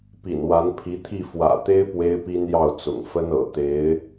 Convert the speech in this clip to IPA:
pḭ˨˩nwa˧˥n pʰi˧˥t̪ʰi˥˩ fwä̰˨˩t̪e˥ɪ̯ pwe˥ɪ̯pi˥njɑ˥˩ʊ̯t͡sʊ̰˨˩ŋ fə˥nɤ̰˨˩ t̪e˧˥ɪ̯

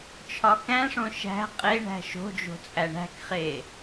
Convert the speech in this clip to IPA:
t͡ʃʰɒkæ̃ʂõ ʃæ̤ qʼe ɳæ̤ʃo̤d͡ʒo̤ t͡sʼæɳæ̤kχe

